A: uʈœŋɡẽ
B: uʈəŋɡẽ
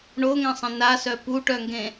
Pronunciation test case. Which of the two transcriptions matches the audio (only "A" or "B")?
A